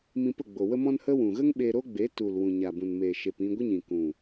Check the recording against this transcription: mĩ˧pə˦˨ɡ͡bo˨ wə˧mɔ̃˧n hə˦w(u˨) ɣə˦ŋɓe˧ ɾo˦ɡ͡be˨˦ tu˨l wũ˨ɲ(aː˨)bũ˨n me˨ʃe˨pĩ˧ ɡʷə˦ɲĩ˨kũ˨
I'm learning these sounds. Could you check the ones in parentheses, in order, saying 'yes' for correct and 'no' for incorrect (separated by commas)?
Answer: no, no